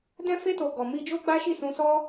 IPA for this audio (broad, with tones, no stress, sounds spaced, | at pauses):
d ɛ̃˧ f e˧ t o˨ ɡ ɔ˨ m i˧ d͡ʒ o˦ ɡ͡b a˦ ʃ i˦˨ s ũ˧ s ɔ˦